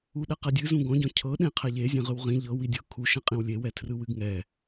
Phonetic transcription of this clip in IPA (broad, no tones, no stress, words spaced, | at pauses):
uɗɛqɛdʲɨ zũɡɔ̃ɟɔ̃ cʰɤɗẽqʰɛ ʎezʲẽ ʁɯwʁĩ ʎɤ widʲɤ kʰuʃɛ̃qʼĩw lʲewɛ tʰrɯwɨɡŋɛ